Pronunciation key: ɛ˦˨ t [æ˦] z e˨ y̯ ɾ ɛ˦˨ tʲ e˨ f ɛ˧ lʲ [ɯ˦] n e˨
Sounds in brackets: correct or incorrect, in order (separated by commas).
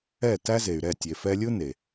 correct, correct